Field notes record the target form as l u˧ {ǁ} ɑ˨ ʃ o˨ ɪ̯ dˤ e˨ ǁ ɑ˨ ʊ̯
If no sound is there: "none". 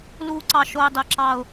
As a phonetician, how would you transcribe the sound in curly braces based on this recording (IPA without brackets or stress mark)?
ǀ